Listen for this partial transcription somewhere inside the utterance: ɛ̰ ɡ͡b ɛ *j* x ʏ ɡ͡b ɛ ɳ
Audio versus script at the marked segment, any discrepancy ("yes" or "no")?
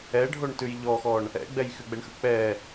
no